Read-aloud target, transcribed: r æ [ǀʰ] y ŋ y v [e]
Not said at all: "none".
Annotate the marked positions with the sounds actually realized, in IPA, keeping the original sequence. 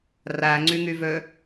ŋ͡ǀ, ø

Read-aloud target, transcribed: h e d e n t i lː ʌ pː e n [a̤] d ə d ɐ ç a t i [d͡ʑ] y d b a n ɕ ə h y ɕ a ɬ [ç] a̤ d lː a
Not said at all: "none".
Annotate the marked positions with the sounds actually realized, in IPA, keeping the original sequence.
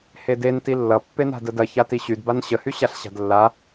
a̤, ɕ, ɕ

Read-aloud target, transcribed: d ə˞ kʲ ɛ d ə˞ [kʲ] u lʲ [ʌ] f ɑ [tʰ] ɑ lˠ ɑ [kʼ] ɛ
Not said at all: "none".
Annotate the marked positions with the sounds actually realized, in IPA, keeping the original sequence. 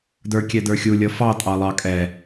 xʲ, ʌ, tʼ, kʼ

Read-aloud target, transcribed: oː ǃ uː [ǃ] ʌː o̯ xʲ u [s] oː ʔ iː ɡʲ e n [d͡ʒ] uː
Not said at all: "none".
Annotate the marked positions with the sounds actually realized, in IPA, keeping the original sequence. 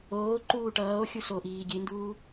ʈ, s, d

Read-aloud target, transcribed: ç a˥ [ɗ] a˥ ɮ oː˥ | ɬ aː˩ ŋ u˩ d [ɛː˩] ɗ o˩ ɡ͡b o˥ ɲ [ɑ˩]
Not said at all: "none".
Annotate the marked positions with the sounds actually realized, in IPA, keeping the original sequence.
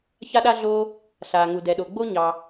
ɗ, ɛ˩, ɑ˩

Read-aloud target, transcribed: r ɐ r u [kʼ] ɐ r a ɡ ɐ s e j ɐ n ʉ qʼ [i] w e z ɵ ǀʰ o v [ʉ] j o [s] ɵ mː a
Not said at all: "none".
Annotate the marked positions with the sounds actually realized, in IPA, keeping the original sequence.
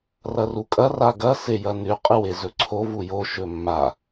kʼ, ɨ, u, ʃ

